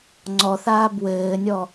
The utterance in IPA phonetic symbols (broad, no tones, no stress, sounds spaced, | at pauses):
ŋ͡ǀ ɔ θ aː b w ɘː nʲ ɔ